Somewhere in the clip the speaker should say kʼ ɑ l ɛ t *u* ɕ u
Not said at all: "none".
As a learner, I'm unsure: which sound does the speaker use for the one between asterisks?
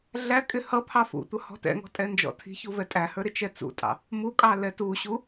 u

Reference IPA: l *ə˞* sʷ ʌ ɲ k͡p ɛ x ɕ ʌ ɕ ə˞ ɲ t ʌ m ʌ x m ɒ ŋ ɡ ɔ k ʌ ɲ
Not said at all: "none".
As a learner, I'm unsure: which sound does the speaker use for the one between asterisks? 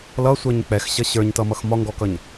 ʌ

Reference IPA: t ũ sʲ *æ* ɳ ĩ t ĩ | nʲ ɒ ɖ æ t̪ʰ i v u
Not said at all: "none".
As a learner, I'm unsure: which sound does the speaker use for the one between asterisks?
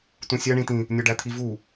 æ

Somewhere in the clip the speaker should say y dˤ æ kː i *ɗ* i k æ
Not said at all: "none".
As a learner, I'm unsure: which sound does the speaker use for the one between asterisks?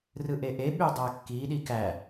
ɗ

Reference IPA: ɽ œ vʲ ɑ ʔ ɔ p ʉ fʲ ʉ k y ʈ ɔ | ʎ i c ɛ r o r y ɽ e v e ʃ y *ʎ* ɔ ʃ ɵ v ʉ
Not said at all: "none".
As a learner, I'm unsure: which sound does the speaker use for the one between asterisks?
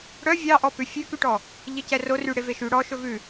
ɽ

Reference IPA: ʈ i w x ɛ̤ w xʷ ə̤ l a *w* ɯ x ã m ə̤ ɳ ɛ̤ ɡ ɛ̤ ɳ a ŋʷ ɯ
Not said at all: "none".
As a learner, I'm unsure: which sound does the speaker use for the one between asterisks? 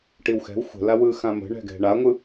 w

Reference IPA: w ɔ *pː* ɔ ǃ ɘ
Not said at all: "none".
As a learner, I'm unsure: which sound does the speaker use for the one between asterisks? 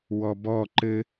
b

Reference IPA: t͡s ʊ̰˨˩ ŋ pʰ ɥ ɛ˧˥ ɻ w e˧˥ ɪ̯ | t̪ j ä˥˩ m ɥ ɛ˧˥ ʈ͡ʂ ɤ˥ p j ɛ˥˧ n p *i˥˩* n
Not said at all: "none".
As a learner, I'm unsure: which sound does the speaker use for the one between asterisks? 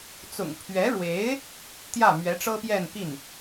i˥˩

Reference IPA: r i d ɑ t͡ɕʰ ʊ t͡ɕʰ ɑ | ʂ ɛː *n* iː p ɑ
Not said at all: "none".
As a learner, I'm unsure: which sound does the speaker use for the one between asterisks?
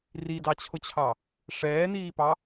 n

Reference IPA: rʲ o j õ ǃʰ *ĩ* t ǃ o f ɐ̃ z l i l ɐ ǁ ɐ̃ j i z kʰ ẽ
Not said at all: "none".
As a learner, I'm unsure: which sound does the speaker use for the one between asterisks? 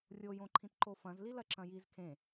ĩ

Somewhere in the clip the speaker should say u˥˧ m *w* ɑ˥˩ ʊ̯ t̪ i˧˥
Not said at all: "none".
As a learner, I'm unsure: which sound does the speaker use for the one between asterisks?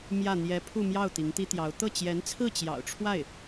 j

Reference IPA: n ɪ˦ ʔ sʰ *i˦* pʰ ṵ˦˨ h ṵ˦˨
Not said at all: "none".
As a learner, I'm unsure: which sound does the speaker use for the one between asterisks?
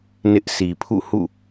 i˨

